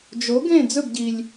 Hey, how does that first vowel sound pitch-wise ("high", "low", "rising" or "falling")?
rising